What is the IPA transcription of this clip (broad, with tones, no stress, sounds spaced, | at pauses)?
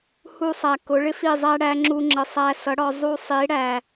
h u˧ sˤ æ˨ k ʊ˨˦ ɭ ɪ˦ f i˦˨ zˤ æ˦ ɽ æ˦ ŋ͡ǁ u˧ ŋ͡ǁ ə˨ sˤ æ˧ s ʌ˨˦ ɽ ɒ˧ zˤ u˧ sˤ i˨˦ ɽ æ˨